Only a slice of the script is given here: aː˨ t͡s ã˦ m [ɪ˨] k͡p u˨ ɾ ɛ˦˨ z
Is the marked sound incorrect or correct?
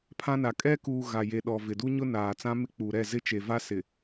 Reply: incorrect